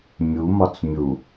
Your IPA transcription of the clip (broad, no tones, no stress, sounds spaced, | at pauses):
mʲ u m ɒ t͡s mʲ u